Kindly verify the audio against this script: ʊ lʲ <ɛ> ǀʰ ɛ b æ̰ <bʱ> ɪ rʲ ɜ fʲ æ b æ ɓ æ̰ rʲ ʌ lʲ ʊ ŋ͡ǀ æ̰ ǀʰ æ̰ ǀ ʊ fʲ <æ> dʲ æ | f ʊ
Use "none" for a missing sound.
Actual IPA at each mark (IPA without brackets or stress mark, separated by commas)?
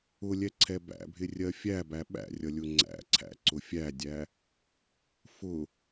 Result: ɛ, bʱ, æ